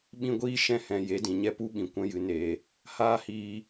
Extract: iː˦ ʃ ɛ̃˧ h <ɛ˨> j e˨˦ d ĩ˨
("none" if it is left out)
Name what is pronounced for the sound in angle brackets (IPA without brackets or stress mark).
ɛ̃˨